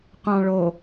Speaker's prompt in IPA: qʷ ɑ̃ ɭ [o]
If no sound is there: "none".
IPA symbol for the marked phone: o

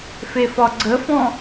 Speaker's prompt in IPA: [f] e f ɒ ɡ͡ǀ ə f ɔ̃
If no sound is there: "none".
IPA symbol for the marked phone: f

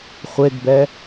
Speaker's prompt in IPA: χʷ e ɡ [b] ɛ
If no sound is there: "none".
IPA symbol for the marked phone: b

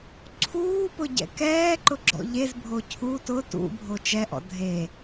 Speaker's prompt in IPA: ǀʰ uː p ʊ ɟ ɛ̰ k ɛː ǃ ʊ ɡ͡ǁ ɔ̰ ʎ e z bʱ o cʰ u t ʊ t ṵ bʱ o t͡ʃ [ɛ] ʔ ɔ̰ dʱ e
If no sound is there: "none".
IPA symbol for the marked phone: ɛ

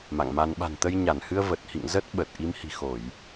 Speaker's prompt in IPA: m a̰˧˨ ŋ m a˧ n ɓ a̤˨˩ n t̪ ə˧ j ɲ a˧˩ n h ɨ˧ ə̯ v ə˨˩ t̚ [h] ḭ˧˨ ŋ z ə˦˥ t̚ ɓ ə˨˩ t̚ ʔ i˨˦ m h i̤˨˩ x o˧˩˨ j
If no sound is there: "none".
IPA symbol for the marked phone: h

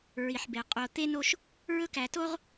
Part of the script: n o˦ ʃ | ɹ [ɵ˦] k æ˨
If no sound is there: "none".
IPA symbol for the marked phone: ɵ˦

